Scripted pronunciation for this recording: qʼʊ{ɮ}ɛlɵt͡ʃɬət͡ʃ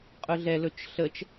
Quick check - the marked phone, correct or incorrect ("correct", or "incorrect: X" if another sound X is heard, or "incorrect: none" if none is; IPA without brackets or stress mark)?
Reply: correct